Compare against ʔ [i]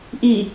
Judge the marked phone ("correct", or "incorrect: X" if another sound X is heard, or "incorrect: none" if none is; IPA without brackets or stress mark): correct